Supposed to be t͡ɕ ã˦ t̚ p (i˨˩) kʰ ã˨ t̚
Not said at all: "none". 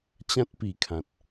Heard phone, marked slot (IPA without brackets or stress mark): i˨˩